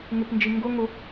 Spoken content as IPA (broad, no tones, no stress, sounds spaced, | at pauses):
ŋ ɪ p n d͡ʒ i ŋ ɡ ʊ ŋ ʊ